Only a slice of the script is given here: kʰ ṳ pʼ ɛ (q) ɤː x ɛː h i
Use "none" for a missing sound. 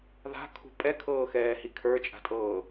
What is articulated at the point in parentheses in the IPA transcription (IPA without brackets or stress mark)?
kʰ